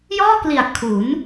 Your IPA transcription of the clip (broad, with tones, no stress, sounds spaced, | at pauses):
j ɔː˥˩ k l i˨˩ a̯ kʰ u˩˦ n